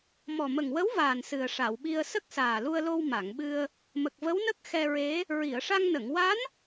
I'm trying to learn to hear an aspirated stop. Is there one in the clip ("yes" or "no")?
no